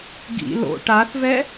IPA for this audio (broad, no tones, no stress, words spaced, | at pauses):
ɡḭ lo̰ ʈaθvɛ